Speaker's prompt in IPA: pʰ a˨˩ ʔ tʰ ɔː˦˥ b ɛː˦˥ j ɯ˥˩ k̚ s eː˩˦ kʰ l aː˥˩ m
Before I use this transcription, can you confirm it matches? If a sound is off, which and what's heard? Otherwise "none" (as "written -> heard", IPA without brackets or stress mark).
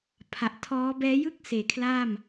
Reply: none